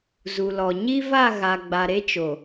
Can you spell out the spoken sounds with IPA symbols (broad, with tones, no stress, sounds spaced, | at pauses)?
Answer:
z u˨ l ɔ˨ ɲ i˦ v a˦˨ ɣ a˨ ɡ͡b a˨ ɾ e˦ t͡ʃ o˨